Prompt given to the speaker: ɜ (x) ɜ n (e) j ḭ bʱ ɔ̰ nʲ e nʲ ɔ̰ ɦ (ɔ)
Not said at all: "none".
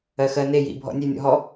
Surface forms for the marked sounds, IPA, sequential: x, e, ɔ

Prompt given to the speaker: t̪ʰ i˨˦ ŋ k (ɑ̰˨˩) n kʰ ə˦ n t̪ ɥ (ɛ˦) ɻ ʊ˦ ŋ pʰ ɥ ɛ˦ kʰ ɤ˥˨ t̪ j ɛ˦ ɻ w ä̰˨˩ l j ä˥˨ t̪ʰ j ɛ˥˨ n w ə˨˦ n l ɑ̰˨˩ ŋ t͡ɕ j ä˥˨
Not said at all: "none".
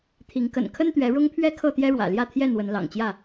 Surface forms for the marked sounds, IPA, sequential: ə̰˨˩, ɛ˨˦

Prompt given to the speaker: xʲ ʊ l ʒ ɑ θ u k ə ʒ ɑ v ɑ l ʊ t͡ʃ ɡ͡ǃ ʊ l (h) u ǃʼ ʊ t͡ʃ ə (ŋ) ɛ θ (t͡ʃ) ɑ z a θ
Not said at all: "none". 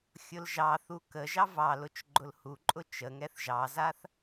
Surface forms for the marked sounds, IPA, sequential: h, ŋ, ʒ

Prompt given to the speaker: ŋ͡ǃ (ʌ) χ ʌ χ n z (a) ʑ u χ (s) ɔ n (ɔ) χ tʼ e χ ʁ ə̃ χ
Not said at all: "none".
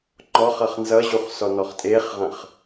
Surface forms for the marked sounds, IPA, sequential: ɔ, ʌ, s, ɔ

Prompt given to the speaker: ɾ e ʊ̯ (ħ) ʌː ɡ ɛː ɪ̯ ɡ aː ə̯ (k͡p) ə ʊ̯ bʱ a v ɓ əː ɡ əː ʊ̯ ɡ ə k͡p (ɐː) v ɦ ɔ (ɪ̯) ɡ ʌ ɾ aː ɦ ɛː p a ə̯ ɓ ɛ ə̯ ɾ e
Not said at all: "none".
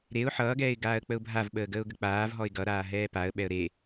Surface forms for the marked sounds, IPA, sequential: ħ, k͡p, aː, ɪ̯

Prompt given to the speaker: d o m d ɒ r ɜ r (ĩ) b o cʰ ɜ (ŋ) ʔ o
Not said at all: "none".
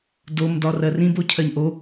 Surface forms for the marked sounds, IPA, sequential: ĩ, ɲ

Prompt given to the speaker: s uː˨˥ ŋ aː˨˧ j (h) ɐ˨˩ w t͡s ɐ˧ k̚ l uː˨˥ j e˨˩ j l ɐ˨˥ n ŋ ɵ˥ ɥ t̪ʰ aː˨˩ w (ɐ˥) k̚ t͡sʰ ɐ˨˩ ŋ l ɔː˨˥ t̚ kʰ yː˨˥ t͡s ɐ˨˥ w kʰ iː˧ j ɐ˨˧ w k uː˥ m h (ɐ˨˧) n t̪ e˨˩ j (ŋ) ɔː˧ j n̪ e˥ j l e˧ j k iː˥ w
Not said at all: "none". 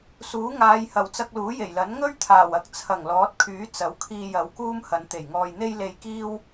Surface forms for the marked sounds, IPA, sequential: h, ɐ˨, ɐ˨˧, ŋ

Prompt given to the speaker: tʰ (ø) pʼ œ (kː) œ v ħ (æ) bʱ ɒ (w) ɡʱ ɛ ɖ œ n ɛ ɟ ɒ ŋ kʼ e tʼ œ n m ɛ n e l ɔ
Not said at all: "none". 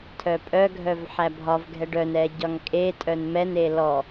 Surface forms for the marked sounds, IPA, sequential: œ, ɡʱ, æ, v

